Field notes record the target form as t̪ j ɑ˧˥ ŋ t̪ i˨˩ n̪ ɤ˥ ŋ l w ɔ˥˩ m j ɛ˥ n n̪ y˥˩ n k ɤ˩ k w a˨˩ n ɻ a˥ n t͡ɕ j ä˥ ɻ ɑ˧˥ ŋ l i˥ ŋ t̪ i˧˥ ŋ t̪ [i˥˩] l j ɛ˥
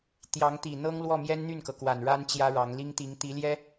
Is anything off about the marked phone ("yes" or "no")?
yes